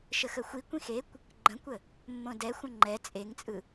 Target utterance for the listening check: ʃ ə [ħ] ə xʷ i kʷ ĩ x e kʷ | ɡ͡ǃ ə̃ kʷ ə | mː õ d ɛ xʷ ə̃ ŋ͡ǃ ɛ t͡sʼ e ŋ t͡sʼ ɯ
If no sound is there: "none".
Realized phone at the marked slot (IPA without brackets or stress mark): x